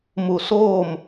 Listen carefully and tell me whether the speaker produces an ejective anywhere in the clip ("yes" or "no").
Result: no